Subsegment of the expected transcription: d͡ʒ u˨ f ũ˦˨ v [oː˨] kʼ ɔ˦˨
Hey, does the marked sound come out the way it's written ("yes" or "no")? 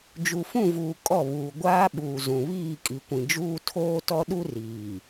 no